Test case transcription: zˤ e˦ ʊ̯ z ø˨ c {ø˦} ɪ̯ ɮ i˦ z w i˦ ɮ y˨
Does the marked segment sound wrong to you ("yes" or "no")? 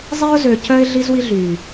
yes